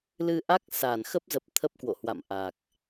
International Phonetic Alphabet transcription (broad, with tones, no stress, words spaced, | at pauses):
lɨ˧ʔa˦˥k̚sa˧˩n xə˦˥p̚zə˨˩p̚ t̪ʰə˦˥p̚kwo̰˧˨hwa̰˧˨m ʔa˨˩k̚